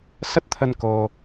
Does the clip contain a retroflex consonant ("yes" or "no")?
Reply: no